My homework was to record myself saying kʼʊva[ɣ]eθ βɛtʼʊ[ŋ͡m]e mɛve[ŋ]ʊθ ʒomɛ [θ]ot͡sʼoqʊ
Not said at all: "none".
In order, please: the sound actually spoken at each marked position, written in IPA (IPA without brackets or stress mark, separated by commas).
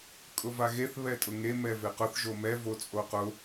ɣ, ŋ, q, v